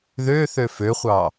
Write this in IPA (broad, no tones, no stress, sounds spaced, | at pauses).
ð ø θ ø f ø χʷ ɑ